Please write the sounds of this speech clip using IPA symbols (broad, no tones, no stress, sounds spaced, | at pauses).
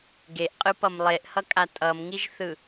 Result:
ɡ e ʔ qʼ ɯ p ʌ m lˠ e ʔ h ʌ kʼ a tʼ ʌ m ŋ i ʒ θ ɯ